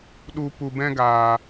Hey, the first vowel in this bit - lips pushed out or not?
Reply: yes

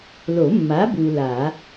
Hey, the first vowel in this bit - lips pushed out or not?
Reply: yes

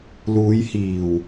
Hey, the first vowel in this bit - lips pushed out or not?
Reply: yes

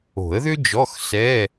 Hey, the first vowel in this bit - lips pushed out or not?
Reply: yes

